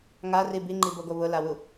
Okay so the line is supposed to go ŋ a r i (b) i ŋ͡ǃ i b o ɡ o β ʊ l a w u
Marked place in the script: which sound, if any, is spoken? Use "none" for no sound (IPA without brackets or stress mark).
b